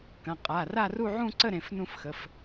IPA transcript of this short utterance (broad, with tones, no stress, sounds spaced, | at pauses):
k ɐ̃˩˧˩ qʼ a˩˧˩ r a˥˧ r u˥˧ ʕ ũ˥˧ ǀ ə˥˧ ɾ ẽ˩˧˩ f n ũ˥˧ f x ə˩˧˩ f